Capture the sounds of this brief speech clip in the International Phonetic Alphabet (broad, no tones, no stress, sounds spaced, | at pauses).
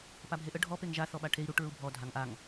p a bʱ e ʔ ə ɖʱ ɔ p e ŋ ʒ a θ ɔ ɓ a ʈʰ e i̯ ɾ u ʈ ɹ u bʱ ɔ dʱ a ŋ ʔ a ŋ